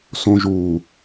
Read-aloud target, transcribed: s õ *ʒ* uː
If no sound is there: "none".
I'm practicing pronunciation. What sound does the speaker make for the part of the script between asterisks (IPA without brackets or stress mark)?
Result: ʒ